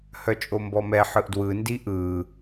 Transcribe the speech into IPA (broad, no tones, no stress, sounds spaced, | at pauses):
h œ t͡ʃʼ o m b ɔ m ɛ ħ ɯ ʔ d w ɯ n d i ʔ ɯ